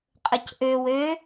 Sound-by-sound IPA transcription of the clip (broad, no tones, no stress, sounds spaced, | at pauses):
qʼ ə c ʔ ø w ø